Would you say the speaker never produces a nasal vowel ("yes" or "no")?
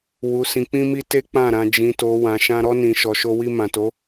no